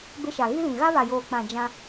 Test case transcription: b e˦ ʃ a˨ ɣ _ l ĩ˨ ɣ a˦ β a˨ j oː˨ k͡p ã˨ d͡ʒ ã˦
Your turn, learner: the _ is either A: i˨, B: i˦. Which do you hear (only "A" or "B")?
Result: B